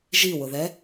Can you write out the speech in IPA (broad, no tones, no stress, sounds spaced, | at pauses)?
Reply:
ʒ i w ʊ ð ɛ